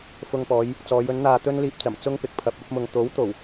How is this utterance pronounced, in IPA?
fʊ˧ŋpɔː˨˧j | t͡sɔː˨˧jɵ˨˥nn̪aː˧ t̪ɵ˥nliː˧p̚t͡sɐ˨˩m t͡sʊ˥ŋpɪ˨k̚ pʰɐ˨p̚ ɐ˨˥p̚ mʊ˨ŋt̪o˨˥wt̪o˨˩w

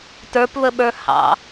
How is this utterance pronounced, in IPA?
tə˞pβəɓə˞ hɑ̰

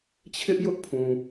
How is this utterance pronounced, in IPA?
t͡ɕʰɪ˦ʔjʊ˦ʔpʰũ˨

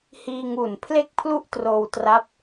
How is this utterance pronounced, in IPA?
hiː˧ŋu˨˩n pʰle˥˩k̚pʰlu˥˩ʔtroː˧wtra˦˥p̚

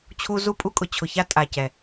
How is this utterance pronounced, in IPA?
t͡ɕʰu˦ zu˦pʼu˦kʼʊ˨ t͡ɕʰʊ˨ça˦ tʼa˨cɛ˨

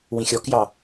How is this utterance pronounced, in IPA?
wĩxʲɔkjɑ

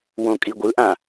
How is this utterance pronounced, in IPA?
wõkʼiɡʷɯʔã

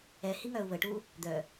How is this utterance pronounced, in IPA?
ɛhiŋœu̯ βəʈu | d̪œ

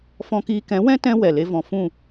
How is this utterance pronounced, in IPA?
fɔ̃˧kiː˧kɛ̃˨˦wɛ̃˦ tɛ̃˧ wɛ˨le˧ vɔ̃˨fũ˦˨

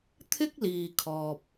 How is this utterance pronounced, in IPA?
t̪ʰɪ˥k̚liː˨ kʰɔː˨p̚

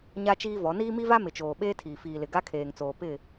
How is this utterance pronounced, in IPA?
ɲa˦t͡ʃiː˦vɔ˨˦ niː˦mi˦va˦ mɪ˨t͡ʃoː˨ ɓeː˦tʰiː˨ fiː˨lɪ˨ ɡa˦kʰeː˨ŋt͡soː˨ pɪ˦˨

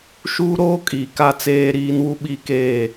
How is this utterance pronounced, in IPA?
ʃuː˦ɾoː˦kʼiː˨ ka˦t͡seː˦ɾiː˦n wu˦ɓi˦keː˦˨

